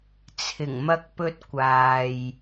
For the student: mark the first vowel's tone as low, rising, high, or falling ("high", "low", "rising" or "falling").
low